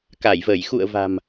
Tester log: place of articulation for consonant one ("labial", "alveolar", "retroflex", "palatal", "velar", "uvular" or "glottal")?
velar